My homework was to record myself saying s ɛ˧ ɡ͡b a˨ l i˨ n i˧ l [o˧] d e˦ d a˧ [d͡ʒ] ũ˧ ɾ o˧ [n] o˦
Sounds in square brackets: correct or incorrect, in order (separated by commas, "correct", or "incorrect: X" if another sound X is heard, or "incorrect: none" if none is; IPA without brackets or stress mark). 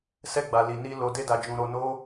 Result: correct, correct, correct